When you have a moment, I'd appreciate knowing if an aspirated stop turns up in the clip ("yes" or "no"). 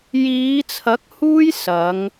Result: yes